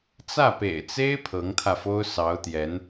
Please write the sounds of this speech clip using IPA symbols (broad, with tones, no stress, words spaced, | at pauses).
t͡sä˥˩pḛ˨˩ɪ̯t͡se˥ɪ̯ pʰɤ˧˥ŋt̪ʰä˧fo˥ʊ̯ sɑ˧˥ʊ̯t̪jɛ˧˥n